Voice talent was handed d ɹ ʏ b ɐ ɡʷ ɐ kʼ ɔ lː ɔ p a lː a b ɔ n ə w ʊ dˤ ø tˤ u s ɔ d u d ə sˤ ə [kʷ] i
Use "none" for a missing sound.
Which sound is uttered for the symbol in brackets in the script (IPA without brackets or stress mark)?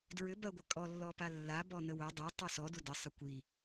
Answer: kʷ